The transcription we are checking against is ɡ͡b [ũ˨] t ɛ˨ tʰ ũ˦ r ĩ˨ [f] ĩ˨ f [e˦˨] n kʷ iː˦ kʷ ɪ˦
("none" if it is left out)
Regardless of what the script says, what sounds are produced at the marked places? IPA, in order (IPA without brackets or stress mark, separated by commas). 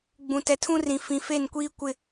ũ˨, f, e˦˨